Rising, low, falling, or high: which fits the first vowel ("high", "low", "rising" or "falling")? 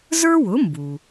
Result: high